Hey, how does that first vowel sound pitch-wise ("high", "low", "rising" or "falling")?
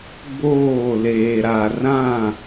falling